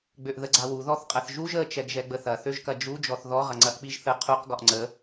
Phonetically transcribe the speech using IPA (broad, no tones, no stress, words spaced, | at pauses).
ɡ͡bøʔðəɡ͡ǀawu ðɔθqʼɐθʒuʒ ə t͡ʃɛɡʒɛɡ͡bəθɐ θøʒkɐd͡ʒu d͡ʒɔθðɔ ʁɐŋ͡ǀɐʔk͡piʒθə qʰuq ɡɔʔŋ͡ǀə